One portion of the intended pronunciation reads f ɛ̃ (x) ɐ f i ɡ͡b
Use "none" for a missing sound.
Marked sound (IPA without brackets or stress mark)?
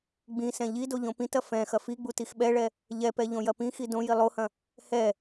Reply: x